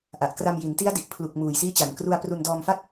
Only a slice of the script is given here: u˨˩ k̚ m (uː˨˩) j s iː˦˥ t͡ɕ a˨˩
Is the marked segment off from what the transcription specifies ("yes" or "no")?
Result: no